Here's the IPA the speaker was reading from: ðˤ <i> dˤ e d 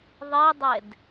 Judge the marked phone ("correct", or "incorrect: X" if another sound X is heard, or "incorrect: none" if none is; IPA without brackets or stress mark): correct